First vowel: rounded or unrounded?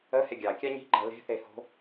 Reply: unrounded